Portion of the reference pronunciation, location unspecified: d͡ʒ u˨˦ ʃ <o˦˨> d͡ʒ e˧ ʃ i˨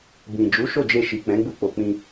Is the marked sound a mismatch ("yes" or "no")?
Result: no